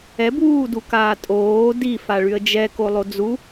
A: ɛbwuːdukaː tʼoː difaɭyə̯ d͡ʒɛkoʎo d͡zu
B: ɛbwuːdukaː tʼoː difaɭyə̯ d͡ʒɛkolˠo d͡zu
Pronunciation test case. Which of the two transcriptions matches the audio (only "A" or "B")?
B